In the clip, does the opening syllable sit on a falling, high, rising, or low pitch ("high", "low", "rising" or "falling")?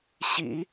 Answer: low